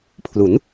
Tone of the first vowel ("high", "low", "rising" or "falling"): rising